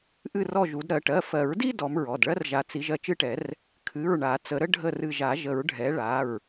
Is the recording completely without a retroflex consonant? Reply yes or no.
no